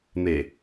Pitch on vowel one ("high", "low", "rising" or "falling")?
low